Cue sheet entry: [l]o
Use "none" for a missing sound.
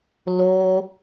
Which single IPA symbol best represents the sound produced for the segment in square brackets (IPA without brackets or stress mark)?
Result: l